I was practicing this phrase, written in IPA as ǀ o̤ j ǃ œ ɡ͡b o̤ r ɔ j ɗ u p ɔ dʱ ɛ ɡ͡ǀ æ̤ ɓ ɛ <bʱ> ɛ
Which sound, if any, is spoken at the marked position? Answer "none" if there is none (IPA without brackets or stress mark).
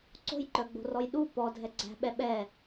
ɓ